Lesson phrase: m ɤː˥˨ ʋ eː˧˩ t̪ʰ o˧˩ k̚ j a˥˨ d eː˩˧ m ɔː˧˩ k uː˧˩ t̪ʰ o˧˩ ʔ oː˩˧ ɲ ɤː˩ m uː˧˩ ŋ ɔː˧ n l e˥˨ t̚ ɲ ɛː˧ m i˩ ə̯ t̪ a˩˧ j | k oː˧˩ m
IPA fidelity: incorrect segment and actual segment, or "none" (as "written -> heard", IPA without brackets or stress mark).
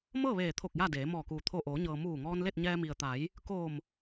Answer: none